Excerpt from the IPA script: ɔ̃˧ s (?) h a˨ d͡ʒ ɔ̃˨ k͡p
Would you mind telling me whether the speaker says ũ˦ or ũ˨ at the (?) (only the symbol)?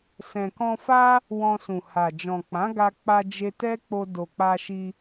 ũ˨